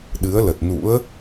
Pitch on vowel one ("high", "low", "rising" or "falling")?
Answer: rising